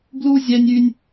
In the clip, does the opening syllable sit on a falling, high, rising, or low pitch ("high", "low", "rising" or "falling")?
high